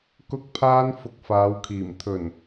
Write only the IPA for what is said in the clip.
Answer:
k ʊ˥ k̚ pʰ aː˥ n f ʊ˧ k̚ f aː˨˧ w kʰ iː˨˩ m t̪ʰ ɵ˨˩ n

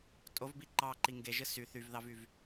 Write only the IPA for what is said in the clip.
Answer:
tʼ o v b i ǃ ɑ ǃ i ŋ ɡ e ʒ ɯ s y θ y v ð ɑ v y v

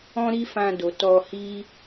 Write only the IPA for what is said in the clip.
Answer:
ɔ̃˦ ɾ i˦ f ã˧ d o˨ t ɔ˧ h i˦

